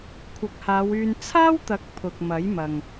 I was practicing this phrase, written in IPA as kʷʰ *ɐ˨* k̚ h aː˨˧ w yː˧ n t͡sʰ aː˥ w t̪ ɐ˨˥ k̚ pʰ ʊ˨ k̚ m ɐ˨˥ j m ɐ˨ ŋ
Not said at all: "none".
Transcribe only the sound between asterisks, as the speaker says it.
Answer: ɐ˨˥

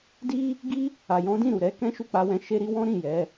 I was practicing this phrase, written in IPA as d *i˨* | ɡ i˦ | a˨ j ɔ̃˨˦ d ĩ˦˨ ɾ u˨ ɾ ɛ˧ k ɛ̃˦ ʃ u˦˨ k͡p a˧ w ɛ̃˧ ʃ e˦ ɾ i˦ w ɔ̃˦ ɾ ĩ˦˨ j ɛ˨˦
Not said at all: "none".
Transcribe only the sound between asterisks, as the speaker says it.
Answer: i˦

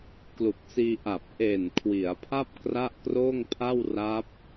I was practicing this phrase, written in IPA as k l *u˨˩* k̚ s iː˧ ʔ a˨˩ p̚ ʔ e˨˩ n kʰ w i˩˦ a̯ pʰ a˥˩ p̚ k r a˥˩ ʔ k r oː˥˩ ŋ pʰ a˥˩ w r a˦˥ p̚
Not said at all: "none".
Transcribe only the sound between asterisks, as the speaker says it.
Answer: u˨˩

